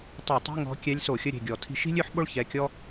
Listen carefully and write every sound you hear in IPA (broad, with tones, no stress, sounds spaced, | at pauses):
tˤ e˧˩˧ tˤ i̤˧˥˧ ŋ ɔ̤˧˥ kʲ ɛ˧˥ lʲ s o˧˩˧ xʲ ə˧˥˧ ɾʲ e̤˩˧˩ ɡʲ ɔ˧˩˧ tʰ i̤˧ ʃ i̤˥ lʲ ø˥ ħ ɓ o˥ ɭ ç ɛ˩˧˩ kʲ ɔ˥